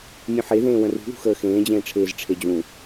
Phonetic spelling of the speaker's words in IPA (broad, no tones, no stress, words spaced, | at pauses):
mʲũħeðẽː wə̃rṳðṳ xəːxẽːd͡ʑẽːʈ͡ʂʰeːz ʈ͡ʂʰed͡ʑũ